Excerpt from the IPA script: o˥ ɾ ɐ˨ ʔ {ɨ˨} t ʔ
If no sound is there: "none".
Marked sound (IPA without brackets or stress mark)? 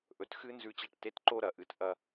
ɨ˨